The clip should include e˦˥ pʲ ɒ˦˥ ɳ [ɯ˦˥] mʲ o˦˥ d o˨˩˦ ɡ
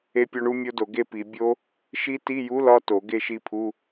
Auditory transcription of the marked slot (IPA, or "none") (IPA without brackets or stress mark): u˦˥